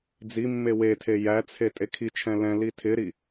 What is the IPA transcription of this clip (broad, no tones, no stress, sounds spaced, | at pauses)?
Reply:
d͡z i mː e w e tʰ e j æ t͡sʰ e tʼ e kʰ i t͡ʃʰ ɛ̃ l ɛ̃ l i tʰ ɪ ɾ i